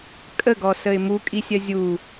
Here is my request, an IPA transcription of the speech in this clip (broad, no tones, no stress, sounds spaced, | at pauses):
kʼ ə ɡ ɔ s ə ɪ̯ m u kʼ i sʲ ɜ zʲ u